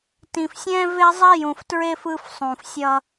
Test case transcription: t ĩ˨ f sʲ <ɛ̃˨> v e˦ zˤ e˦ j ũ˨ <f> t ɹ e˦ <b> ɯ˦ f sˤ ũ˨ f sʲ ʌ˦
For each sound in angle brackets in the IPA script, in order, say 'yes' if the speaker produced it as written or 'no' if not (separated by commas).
no, yes, no